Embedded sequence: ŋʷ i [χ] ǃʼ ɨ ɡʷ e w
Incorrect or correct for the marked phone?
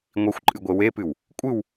incorrect: xʷ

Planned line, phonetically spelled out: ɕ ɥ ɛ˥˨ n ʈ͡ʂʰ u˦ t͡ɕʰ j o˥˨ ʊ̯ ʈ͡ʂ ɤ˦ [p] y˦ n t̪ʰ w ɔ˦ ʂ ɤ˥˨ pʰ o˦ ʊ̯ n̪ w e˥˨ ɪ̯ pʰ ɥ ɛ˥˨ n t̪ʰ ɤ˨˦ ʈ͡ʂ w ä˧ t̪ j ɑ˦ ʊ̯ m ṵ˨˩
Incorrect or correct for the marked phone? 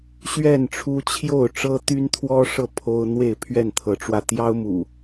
incorrect: t̪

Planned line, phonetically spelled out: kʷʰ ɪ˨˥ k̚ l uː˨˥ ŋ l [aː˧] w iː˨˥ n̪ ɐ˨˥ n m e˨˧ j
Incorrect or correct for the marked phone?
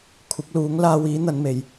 correct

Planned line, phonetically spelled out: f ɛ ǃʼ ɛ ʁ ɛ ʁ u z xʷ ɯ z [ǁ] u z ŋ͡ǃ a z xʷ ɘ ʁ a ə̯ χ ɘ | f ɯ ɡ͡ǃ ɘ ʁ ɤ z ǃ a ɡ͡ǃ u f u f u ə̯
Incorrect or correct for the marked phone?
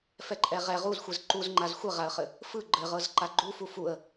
incorrect: ǃ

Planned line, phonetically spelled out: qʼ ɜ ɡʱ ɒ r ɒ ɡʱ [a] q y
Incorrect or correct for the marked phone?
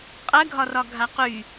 correct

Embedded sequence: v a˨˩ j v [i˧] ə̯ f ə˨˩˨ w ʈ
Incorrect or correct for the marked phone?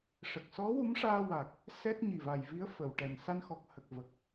incorrect: i˧˥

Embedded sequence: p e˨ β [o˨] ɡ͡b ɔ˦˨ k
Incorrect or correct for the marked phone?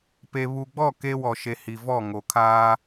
incorrect: u˨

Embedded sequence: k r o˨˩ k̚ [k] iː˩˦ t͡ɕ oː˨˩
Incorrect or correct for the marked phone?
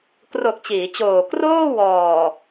incorrect: t͡ɕ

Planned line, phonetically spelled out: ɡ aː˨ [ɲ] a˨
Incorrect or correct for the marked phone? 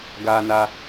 incorrect: n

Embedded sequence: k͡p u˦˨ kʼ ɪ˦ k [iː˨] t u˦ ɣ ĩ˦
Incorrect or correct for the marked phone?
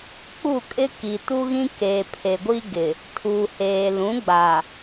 incorrect: i˨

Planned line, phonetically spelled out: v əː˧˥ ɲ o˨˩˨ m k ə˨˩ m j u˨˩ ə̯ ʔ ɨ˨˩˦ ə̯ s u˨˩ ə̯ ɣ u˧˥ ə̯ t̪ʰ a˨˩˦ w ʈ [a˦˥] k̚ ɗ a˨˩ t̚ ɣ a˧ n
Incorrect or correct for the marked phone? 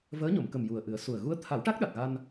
correct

